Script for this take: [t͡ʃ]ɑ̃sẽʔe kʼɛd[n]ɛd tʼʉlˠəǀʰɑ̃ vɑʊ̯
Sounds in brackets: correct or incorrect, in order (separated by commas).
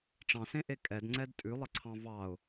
incorrect, incorrect